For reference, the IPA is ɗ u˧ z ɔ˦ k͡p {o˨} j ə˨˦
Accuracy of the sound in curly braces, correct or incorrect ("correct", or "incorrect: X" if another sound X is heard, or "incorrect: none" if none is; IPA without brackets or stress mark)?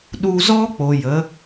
correct